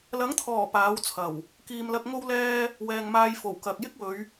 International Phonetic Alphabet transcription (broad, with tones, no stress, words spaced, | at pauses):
lɐ˨˥ŋt̪ʰɔː˨˩ paː˨˥wt͡sʰɐ˨˩w | kiː˨mlɐ˧k̚ ŋo˥wlɛː˥ | wɛː˨ŋmaː˧j fo˨˩wkɐ˨k̚ jɪ˥k̚wɵ˨˧ɥ